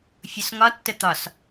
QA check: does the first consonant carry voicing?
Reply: no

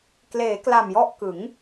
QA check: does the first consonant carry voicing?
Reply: no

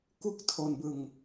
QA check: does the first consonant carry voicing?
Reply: no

